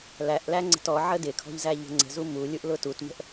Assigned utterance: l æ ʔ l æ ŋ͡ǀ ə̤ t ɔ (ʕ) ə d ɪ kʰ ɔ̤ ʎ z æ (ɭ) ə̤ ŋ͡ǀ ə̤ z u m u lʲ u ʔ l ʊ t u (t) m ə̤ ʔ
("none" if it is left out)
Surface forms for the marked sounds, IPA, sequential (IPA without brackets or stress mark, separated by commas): ʕ, ʎ, t